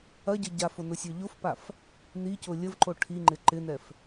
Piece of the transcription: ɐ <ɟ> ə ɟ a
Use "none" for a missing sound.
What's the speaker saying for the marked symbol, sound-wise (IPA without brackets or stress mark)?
ɟ